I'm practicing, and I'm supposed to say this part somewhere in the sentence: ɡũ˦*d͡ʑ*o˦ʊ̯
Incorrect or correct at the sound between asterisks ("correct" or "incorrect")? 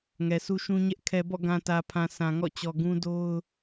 incorrect